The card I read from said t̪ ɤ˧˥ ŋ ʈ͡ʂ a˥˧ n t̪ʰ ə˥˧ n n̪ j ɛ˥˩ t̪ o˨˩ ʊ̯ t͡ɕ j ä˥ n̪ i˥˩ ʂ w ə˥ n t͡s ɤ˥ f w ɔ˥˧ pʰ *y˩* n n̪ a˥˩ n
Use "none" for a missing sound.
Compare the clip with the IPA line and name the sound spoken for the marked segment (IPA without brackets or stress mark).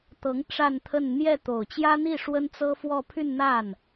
y˥˧